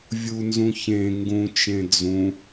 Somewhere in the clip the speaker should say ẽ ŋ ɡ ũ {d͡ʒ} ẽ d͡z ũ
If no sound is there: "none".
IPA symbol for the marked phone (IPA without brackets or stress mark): t͡ʃ